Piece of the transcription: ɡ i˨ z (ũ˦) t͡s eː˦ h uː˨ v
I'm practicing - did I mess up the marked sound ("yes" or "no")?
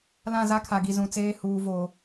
yes